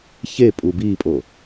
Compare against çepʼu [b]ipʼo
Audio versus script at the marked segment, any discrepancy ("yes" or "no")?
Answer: no